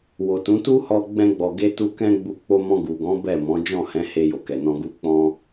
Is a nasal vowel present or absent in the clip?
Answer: present